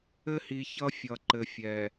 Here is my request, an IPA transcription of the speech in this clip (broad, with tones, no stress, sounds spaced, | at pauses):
ɘ˦ h i˨ ç ʌ˦ fʲ ʌ˨ ǃ ɘ˨ fʲ ɛ˨